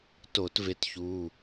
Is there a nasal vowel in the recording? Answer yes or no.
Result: no